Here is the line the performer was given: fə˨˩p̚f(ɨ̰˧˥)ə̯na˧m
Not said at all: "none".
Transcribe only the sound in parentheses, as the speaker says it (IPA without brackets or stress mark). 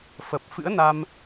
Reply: ɨ̰˧˥